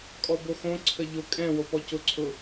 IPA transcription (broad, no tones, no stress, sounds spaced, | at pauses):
kʼ ɔ b o x õ ǀʰ ə ʎ ʊ kʼ ɛ̃ w o p ɔ c ʊ ǀʰ ʊ